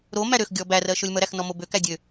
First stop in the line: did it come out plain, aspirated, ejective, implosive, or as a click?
plain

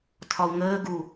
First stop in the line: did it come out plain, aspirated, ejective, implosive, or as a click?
aspirated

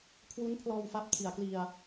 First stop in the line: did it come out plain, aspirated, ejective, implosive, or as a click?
aspirated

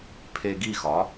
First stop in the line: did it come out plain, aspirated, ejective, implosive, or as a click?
aspirated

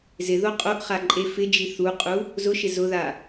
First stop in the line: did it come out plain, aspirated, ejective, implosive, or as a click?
ejective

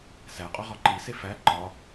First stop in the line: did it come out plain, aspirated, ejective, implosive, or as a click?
ejective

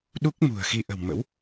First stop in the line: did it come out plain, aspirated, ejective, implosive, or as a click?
implosive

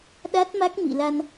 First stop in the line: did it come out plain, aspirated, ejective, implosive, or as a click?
implosive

